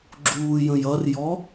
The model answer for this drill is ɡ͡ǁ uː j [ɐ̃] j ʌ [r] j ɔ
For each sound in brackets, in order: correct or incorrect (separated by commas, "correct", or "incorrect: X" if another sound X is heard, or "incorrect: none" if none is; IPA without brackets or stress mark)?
incorrect: ə̃, correct